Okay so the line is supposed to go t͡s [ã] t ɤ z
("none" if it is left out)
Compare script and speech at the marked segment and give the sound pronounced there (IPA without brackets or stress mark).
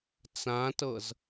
ã